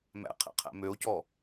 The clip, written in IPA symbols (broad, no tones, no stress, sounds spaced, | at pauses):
m æ̰ qʰ ɛ̰ qʰ æ̰ m ø o̯ c ɔ